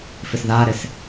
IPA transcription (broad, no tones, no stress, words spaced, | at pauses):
fɪsðaɾɪs